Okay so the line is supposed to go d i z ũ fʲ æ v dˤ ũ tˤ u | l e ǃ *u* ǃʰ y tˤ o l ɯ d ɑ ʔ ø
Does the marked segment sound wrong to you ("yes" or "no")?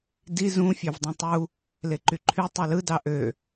yes